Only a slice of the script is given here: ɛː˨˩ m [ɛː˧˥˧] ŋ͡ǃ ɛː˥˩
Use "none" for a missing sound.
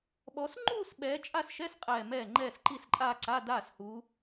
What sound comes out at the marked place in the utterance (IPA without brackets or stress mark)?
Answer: ɛː˥˩